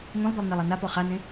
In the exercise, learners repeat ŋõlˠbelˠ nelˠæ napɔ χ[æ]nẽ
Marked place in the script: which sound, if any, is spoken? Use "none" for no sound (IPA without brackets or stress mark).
a